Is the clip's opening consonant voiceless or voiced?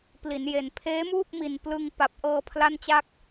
voiceless